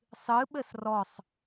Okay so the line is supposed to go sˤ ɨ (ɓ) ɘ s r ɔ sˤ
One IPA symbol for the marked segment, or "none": ɓ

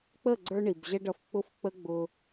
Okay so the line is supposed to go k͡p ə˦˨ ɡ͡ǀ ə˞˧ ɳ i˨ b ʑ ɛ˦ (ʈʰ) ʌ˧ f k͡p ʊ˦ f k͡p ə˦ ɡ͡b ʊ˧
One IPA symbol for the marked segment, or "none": ɖ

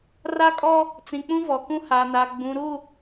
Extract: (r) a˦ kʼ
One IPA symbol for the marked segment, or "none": r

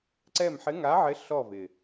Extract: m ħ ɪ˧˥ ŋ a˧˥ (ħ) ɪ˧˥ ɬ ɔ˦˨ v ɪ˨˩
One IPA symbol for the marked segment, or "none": ʕ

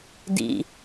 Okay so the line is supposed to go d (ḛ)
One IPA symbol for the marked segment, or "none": ḭ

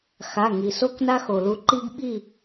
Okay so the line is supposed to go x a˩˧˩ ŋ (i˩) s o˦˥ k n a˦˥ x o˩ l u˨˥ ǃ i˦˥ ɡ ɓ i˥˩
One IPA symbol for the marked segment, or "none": i˩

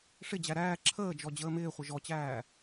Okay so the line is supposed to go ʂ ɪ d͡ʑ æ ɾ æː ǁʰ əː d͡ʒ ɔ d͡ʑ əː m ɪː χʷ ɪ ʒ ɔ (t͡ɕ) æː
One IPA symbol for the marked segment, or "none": t͡ɕ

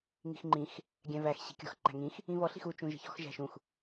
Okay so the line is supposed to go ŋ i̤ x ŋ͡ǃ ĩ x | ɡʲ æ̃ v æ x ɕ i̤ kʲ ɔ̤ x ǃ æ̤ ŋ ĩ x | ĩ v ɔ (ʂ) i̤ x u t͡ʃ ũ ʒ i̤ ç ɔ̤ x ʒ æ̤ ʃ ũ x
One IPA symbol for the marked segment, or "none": ɬ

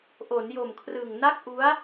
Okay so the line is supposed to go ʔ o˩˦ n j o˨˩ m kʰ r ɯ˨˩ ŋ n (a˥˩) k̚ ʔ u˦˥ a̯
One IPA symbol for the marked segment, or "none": a˥˩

